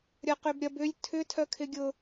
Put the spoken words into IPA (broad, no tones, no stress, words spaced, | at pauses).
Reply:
ɾʲɐqʏbɾʲɐb ʏlʲ tʰʏ tʰœkʰɪɡʲʊ